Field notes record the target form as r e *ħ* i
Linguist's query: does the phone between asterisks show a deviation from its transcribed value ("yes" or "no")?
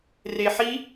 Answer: no